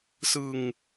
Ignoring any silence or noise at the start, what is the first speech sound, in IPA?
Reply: s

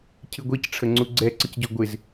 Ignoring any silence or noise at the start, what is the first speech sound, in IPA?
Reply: cʰ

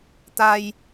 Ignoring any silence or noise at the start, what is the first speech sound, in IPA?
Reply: t̪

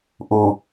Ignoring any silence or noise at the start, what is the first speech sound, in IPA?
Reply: ʔ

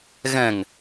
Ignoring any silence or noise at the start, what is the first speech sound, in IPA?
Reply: ɣ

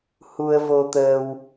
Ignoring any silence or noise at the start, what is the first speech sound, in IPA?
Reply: h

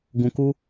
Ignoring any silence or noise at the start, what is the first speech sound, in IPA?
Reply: ɡ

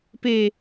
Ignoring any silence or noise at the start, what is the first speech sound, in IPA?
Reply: p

